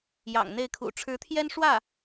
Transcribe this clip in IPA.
j ɑ̰˨˩ ŋ n̪ e˥˩ ɪ̯ kʰ ṵ˨˩ ʈ͡ʂʰ ɻ̩˧˥ t̪ʰ j ɛ˥ n ʂ w ä˥˩

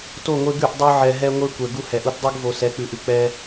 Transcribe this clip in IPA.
t o˦˨ ŋʷ e˦ ɡ ʉ˦˨ ʔ dˤ ʉ˧ ʕ ɛ˧ ɦ ɛ˦ ŋʷ e˦ kʷ ɛ˨ ɡ u˧ h ɛ˨ ʔ u˧ t dˤ u˦ ɡ v o˧ s ɛ˨˦ k͡p ʉ˨ ʔ ʉ˨ k͡p ɛ˦

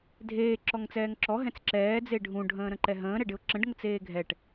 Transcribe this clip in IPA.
dʱ eː ǁ ɔ ŋ t͡s ɛː ŋ ǁ ɔ ɦ ɛ̃ t͡s ǁ ɛː d͡z e ɖʱ ũ ɖʱ ə̃ː ɾ ə̃ ǃ ɛ ɦ ə̃ː ɾ ɛ ɖ ɪ ʊ̯ ǁ ə̃ ɖ ŋ ə t͡s eː ɡʱ ɛ ʈ

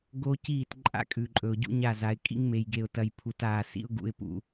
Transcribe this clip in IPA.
ɡ o˦ c iː˦˨ t ǃʼ a̰˦ kʼ ʉ˨ ǃʼ ɵ˨ ʊ̯ ɟ ṵ˦ ɲ a˦˨ z a˨˦ ɪ̯ kʼ ḭ˦ ŋ m e˨ j ɡ e˨ ʊ̯ t ɐ˨ j pʰ u˨ t aː˨ s ḭ˦ ʊ̯ ɡ ṵ˨ ɪ̯ p ṵ˨

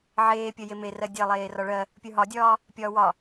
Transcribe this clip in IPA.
ʕ eː pʲ ɜ j e m e r ɜ dʲ ɜ lˠ eː r ɒ ɭ ɜ | pʲ ə˞ ɦ ɒ dʲ ɒː | pʲ ɒː w ɒ

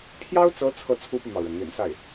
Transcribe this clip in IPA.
pʰ j ɑ˥ ʊ̯ t͡s ɤ˧˥ t͡sʰ ɤ˥ t͡sʰ u˥ p y˨ m ɑ˩ ʊ̯ ɻ ə˩ n n̪ ḭ˨˩ n s a˥˩ ɪ̯

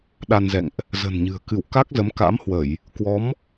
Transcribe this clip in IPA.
ɗ a˧ n z ɛ̰˧˨ ŋ ʔ | z ə̤˨˩ n ɲ ɨ̤˨˩ ə̯ k ɨ˧˩ w k a˦˥ k̚ z ə˨˦ m k a̰˧˥ m h w ə˧˩˨ j | k w ɔ˨˦ m

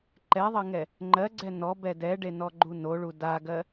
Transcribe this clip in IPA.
ǃ ɛ ðˤ ɜ ŋ ɛ | ŋ͡ǃ ɜ ɡ͡ǀ ɛ n ɔ b ɛ d ɛ ɖ e n ɔ ɡ͡ǃ u n o ɭ u d a ɡ ɜ

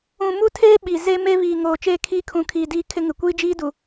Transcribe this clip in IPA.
ũ˨ m u˦ tʰ eː˦ ɓ i˨ z e˦ m e˦ β iː˨ ŋ oː˨ t͡ʃ eː˦ kʰ iː˦ kʰ ũ˨˦ kʰ iː˨ d iː˦ kʰ ɪ˦ ŋ ɪ˨ kʷ iː˦ d͡ʒ iː˦ d u˨

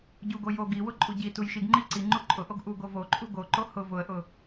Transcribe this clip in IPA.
ɟ u ɡ o j o ɡ i w ʊ ǃʼ u ɟ i t u j ʃ i ɡ ŋ͡ǃ i ǀ i ŋ͡ǃ u ǃʼ ʊ ʔ o ɡ ʔ u ɡ o v o ǃʼ u ɡ o ǃ o h ʊ v ʊ ə̯ ʔ ʊ

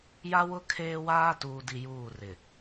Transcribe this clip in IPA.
j a˦ w ʊ˦ kʰ eː˦ w aː˦ t uː˨ d i˨ j uː˦˨ r ɪ˨

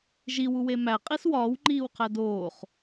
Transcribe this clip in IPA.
ʒ i w u w e m æ qʼ i s w ɒː w ŋ͡ǃ iː w qʰ æ d oː χ

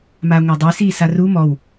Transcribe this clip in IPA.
m a ŋʷ a dˤ i s iː s a r u m ɔ w

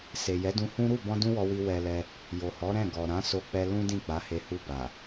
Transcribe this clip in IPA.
s e˨ j ɛ˨˦ d ũ˧ h ũ˦ ɾ u˦˨ b ɔ̃˧ d ũ˦ w ɔ˧ w i˧ w ɛ˧ l ɛ˧ | j o˨ h ɔ˨˦ ɾ ɛ̃˦˨ ɡ ɔ˨ ɾ ã˨˦ s o˧ k͡p ɛ˧ l ũ˦ d ĩ˦˨ k͡p a˨˦ h e˧ h u˧ b a˨

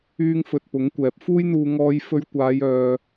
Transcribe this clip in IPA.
yː˥ ŋ f ɵ˧ t̚ p ʊ˨˥ ŋ kʷ ɛː˨ p̚ f uː˥ j n̪ uː˧ ŋ ɔː˥ j f ɵ˥ ɥ kʷ aː˨˧ j œː˨

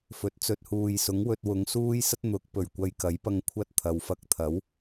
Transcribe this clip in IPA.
f ɵ˨˥ t̚ t͡s ɵ˧ t̚ h uː˨ j s ʊ˨˥ ŋ w ɵ˧ t̚ w ʊ˨˧ ŋ s uː˥ j s ɐ˥ t̚ n̪ ʊ˨˥ k̚ p ɵ˨˩ ɥ kʷ ɐ˧ j k ɐ˨˥ j p ɐ˧ ŋ kʷʰ ɐ˥ t̚ t̪ʰ ɐ˨˧ w f ɐ˧ k̚ t̪ʰ ɐ˨˥ w

